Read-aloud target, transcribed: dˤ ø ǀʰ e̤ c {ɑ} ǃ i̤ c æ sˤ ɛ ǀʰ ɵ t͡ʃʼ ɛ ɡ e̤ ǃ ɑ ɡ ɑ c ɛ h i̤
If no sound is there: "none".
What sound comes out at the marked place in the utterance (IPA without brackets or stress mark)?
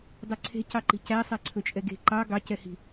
ɑ